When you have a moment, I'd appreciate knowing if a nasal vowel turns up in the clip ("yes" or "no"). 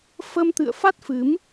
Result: no